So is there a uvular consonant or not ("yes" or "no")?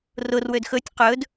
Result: yes